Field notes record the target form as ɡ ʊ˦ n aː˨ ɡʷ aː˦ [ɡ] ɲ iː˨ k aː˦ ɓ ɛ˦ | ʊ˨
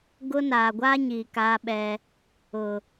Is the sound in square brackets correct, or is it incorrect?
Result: incorrect: none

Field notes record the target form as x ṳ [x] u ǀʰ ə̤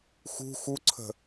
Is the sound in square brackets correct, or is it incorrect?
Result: correct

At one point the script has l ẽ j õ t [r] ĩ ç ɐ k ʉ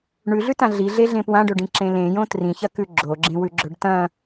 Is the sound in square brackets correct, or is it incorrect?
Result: correct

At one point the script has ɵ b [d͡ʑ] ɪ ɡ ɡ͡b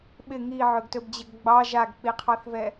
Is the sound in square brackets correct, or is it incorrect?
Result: correct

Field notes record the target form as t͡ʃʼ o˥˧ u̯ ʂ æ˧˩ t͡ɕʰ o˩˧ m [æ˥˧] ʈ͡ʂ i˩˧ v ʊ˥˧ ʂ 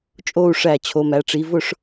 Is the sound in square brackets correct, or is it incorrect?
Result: incorrect: æ˩˧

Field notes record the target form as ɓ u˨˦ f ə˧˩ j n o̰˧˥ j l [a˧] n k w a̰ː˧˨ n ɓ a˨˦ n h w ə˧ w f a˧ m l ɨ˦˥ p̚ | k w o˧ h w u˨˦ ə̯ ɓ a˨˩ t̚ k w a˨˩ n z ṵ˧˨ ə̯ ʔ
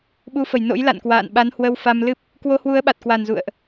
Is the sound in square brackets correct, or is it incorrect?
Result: incorrect: a̰˧˨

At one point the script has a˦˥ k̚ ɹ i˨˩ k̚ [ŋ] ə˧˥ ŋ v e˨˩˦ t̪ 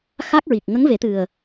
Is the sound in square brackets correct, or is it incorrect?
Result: correct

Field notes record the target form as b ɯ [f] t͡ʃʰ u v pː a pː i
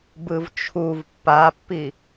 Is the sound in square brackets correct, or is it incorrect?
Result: incorrect: v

